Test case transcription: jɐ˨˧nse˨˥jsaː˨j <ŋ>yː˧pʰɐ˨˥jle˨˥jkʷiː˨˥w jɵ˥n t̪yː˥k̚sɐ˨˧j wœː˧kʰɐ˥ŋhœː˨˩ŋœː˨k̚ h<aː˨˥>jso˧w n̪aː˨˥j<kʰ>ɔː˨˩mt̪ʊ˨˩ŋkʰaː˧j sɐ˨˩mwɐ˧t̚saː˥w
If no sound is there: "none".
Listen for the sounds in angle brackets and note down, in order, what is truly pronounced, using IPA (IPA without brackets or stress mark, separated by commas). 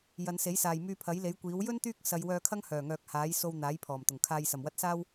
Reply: m, aː˨˥, pʰ